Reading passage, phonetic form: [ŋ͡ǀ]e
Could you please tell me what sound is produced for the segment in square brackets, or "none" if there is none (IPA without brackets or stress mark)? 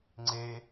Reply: ŋ͡ǀ